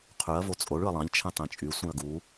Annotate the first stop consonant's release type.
aspirated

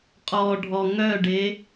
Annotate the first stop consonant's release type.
ejective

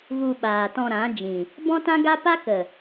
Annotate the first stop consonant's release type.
implosive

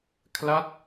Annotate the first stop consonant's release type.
aspirated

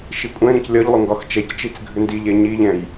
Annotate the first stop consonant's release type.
ejective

